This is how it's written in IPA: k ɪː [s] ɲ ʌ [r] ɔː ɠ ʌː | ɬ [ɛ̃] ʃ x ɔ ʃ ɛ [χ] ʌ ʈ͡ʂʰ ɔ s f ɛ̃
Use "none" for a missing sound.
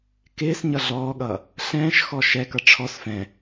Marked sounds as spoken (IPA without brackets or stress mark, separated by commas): s, ɮ, ɛ̃ː, k